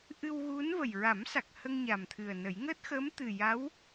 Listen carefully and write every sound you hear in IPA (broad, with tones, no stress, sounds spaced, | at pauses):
ʔ ɨ˧ w ɣ u˧˥ n v ə˨˩ j ɹ a˨˩˦ m s a˨˩ k̚ h ə˧ ŋ ɲ a˨˩ m t̪ʰ ɨ˨˩ ə̯ n ə˨˩˦ j ŋ əː˦˥ t̚ x əː˧˥ m t̪ ɨ˨˩ j a˧˥ w